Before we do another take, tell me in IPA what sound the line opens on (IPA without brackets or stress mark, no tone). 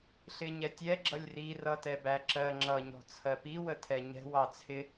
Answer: ɬ